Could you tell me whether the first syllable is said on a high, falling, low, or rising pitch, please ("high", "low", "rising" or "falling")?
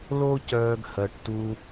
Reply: high